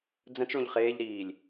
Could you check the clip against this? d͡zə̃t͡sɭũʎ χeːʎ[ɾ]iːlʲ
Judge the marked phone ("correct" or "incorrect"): correct